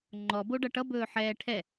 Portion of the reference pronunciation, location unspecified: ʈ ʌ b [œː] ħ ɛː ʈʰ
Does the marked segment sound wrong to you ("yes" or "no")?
yes